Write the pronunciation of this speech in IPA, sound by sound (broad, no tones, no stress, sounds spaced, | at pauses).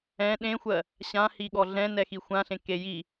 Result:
ɛ̃ ɗ ẽ xʷ ɜ | ɕ ã h i ɠ ɔ ɮ ɛ̃ n ɛ x i xʷ ã ɬ ẽ k e j i